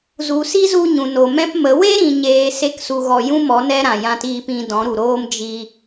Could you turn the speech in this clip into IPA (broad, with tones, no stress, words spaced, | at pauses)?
zu˨si˦zu˧ ɲũ˨no˨ mɛ̃˦pmə˨˦ we˦ɾĩ˨ɲeː˨ se˦ksu˧ɣɔ˧ jũ˦mɔ˨˦ nɛ˦ɾã˨jã˧tiː˧p ĩ˧ dɔ̃˨˦ɾu˨ɾoː˦m d͡ʒi˧